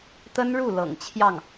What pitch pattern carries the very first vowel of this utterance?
high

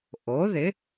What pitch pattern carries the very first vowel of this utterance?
rising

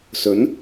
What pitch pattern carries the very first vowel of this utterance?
rising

